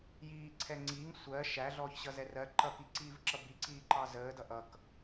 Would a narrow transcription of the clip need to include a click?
yes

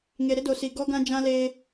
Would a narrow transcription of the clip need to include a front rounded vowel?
no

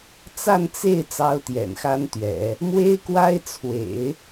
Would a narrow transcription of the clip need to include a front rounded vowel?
no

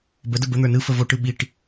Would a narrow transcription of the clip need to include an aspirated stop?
no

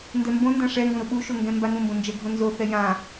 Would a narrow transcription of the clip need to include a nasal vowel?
yes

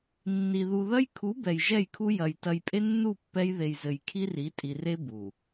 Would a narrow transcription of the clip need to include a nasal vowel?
no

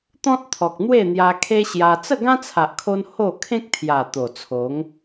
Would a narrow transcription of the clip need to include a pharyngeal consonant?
no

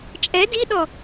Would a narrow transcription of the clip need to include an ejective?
yes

